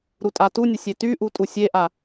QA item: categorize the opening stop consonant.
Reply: ejective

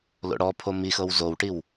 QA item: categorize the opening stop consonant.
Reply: aspirated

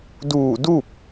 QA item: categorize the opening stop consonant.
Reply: plain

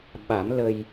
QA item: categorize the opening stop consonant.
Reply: implosive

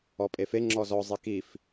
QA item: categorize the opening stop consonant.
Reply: ejective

